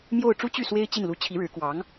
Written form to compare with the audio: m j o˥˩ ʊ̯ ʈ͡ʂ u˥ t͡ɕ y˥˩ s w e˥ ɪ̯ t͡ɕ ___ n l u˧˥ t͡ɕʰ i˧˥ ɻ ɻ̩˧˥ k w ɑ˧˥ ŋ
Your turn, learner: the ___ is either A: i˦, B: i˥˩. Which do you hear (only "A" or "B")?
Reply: B